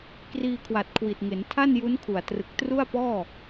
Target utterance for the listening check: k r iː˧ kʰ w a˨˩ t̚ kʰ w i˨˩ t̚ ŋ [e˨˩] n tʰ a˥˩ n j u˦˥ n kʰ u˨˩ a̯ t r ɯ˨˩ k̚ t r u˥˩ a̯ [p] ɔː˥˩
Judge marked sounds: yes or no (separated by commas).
no, yes